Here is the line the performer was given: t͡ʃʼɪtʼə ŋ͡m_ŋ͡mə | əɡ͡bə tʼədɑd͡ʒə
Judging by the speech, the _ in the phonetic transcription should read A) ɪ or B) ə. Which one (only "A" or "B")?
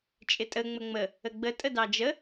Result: B